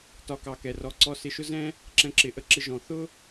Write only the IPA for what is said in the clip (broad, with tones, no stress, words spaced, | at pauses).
tɒ˧kɑ˧kɛ˩rɔ˧ ǀɔ˧sɪ˧ʃʊ˥zɛ̃˥ | ǁɛ̃˧ǁɪ˩ʔə˧ǁɪ˧ ʒɔ̃˩θʊ˥